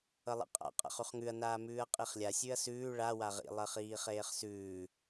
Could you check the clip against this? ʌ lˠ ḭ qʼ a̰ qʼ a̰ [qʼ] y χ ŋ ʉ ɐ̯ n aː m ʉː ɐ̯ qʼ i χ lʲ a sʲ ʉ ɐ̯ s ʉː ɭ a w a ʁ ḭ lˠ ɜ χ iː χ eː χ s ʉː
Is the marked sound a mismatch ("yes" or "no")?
yes